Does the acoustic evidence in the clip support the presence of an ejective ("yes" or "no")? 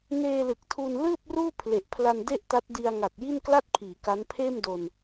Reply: no